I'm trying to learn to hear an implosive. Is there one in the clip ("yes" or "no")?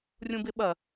yes